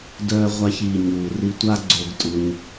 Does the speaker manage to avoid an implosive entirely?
yes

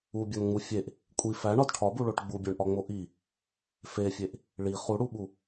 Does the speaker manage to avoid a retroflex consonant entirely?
no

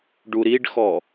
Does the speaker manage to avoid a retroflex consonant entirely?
no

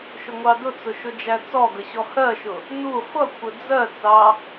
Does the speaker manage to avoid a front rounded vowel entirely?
yes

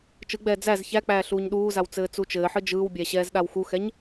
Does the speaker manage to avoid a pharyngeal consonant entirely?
no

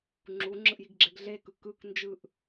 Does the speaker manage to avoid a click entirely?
no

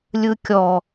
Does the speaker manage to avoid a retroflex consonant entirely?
yes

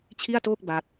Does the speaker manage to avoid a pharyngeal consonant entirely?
yes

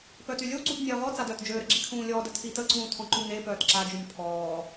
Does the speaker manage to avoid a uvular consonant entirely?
no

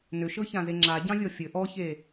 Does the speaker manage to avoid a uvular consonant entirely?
yes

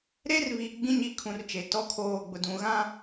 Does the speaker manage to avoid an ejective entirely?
yes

